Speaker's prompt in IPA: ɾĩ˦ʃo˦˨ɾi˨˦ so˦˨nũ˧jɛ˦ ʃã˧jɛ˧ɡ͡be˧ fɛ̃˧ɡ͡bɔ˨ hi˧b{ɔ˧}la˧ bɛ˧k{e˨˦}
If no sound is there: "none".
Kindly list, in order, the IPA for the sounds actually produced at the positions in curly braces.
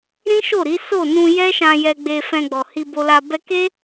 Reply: o˧, e˦

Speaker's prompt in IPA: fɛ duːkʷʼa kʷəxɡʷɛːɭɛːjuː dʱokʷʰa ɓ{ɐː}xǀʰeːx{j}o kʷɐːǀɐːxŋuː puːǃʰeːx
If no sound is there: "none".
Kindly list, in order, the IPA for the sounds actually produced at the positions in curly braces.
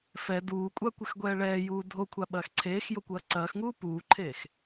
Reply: ɐː, j

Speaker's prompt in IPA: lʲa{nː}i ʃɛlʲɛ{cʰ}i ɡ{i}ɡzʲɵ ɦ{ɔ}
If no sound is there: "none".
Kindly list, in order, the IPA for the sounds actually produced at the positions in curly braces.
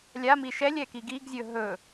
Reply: m, k, i, ɵ

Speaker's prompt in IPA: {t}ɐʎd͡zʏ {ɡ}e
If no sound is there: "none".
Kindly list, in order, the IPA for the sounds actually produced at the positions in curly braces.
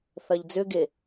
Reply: θ, ɡ

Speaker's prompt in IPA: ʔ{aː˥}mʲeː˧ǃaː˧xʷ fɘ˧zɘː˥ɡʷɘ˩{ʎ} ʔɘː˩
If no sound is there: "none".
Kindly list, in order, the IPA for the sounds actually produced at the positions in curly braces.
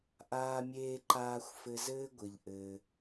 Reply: aː˧, ʎ

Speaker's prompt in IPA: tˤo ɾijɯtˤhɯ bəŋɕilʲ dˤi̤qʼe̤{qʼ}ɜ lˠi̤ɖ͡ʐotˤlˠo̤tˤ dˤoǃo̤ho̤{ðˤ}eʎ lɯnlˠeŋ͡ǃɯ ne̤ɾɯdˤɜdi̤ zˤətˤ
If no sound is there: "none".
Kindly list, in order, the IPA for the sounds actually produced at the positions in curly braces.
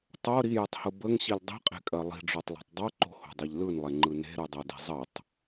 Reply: kʼ, dˤ

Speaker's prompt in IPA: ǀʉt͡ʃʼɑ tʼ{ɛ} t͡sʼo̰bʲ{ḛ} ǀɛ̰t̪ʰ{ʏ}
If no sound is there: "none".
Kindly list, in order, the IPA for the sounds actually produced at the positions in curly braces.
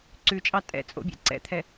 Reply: ɛ̰, ḛ, ɛ

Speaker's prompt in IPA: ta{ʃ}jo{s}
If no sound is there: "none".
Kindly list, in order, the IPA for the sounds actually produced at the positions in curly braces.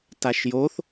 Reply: ʃ, θ

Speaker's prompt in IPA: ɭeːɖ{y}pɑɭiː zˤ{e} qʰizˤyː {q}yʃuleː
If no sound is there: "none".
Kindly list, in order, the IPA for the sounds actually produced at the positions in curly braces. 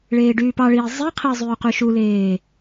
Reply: yː, i, q

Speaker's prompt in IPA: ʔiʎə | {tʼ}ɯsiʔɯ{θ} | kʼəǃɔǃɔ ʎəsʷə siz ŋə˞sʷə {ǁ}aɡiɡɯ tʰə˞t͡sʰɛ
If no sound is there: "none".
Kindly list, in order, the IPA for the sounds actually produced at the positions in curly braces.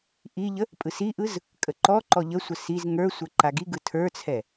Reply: pʼ, z, ǃ

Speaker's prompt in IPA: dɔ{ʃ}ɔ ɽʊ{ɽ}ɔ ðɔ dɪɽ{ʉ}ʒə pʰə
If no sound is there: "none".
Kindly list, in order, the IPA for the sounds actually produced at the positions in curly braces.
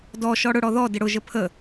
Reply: ʃ, ɽ, ʊ

